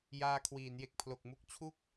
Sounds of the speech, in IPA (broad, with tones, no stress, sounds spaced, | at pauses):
j aː˧ kʰ w iː˩˦ n j e˨˩ k̚ pʰ l o˨˩ k̚ m u˦˥ k̚ t͡ɕʰ u˥˩ k̚